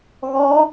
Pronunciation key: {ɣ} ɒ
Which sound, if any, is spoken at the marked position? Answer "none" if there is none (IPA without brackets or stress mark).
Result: ɣ